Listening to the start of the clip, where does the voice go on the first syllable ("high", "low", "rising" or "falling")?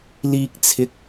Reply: low